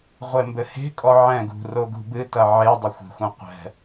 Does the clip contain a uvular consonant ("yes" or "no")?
yes